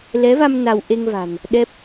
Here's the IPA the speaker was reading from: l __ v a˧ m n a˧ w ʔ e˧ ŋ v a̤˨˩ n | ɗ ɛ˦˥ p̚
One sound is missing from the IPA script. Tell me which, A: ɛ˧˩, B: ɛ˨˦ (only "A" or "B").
B